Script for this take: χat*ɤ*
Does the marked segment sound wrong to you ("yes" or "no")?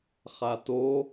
yes